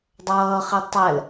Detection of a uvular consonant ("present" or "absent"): present